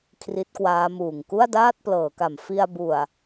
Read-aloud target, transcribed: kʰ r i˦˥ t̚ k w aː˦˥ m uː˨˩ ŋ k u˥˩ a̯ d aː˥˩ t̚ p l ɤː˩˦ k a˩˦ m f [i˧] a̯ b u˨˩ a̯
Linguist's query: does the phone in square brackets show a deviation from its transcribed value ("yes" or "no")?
no